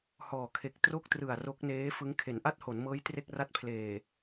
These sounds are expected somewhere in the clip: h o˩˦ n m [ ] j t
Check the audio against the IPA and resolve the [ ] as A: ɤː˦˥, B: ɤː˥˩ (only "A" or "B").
A